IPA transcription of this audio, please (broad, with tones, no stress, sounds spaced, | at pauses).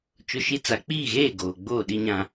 t͡ʃ ʊ˦ ʃ i˦ t͡s a˨ k͡p iː˦˨ ɣ eː˦˨ ɡ oː˨ ɡ͡b oː˦˨ ɗ i˦ ɲ ã˦